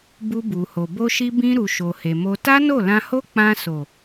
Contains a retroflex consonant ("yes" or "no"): no